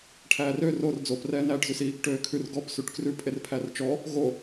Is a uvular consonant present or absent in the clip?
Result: absent